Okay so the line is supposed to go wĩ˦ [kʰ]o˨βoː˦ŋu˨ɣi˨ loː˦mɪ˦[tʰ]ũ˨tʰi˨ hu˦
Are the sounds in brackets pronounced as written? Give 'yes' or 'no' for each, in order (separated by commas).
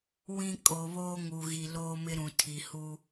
no, no